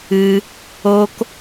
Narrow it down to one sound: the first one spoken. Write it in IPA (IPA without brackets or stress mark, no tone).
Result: ɨ